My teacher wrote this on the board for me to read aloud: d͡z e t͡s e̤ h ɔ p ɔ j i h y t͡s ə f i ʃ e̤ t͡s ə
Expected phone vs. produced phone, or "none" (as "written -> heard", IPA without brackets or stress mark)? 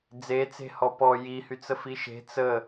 none